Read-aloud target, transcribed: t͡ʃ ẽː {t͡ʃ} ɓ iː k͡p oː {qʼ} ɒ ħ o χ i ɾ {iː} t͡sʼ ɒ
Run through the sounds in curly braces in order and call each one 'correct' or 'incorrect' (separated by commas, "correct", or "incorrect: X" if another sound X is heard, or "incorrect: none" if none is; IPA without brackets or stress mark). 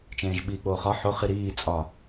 incorrect: ʒ, incorrect: χ, correct